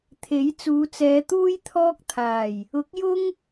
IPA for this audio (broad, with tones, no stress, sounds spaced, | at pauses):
t̪ʰ e˨˥ j t͡s uː˨˧ t͡s ɛː˨˧ t̪ uː˥ j t̪ʰ ɔː˥ k̚ t̪ʰ aː˨˩ j | ʊ˨˥ k̚ j ʊ˥ ŋ